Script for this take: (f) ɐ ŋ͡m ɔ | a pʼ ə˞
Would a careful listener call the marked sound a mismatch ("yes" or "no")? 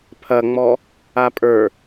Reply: yes